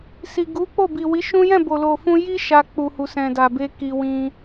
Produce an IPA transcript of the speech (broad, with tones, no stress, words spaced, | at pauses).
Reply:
si˨ɡu˨˦k͡po˦˨ bi˨wi˨˦ʃũ˦ jɛ̃˦˨bo˨lo˨ fũ˧ji˦ ʃa˧k͡pu˨hu˨ sɛ̃˨da˨be˧ ki˧wĩ˦